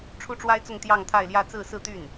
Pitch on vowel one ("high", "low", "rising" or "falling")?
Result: high